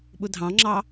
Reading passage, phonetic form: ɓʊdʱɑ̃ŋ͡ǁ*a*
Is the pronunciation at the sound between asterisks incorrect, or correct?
incorrect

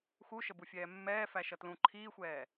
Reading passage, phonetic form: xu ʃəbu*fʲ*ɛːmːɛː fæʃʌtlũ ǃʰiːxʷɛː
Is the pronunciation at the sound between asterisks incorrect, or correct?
correct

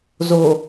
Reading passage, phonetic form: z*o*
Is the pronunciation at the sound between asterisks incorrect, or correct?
correct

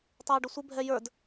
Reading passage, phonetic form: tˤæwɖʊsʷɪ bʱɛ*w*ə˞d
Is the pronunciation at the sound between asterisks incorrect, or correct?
incorrect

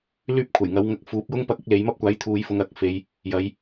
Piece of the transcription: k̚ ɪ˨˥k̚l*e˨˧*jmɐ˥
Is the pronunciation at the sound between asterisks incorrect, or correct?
correct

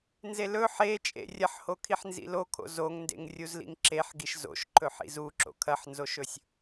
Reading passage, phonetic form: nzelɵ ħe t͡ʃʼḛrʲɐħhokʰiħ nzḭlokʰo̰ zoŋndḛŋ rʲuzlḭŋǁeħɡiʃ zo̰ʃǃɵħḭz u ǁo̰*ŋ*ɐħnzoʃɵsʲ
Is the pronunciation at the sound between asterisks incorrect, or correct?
incorrect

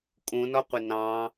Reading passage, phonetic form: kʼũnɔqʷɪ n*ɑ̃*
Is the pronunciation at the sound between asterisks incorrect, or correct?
correct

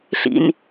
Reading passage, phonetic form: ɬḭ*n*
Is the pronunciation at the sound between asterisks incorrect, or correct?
correct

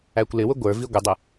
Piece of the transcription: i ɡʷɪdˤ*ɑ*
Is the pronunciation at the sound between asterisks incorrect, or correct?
incorrect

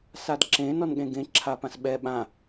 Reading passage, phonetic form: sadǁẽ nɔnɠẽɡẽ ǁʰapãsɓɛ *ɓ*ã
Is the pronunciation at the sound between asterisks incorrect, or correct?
correct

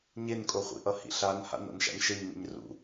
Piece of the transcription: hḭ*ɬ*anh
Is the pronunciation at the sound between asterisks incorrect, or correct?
correct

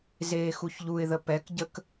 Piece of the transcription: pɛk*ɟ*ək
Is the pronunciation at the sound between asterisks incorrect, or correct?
correct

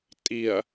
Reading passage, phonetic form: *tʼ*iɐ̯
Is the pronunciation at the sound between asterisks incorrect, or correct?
correct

